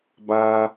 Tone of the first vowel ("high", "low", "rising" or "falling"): high